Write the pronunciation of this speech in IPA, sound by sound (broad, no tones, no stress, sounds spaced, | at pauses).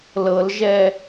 l ɤ l ʒ ɛ